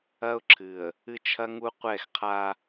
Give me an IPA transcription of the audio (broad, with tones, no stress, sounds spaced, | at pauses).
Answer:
ɐ˦ ʊ̯ ǁʰ ɨ˨ ə̯ | ɨ˦ t͡ʃʰ ɐ˦ ŋ u˦ qʷ ɛ˦˨ x qʰ a˦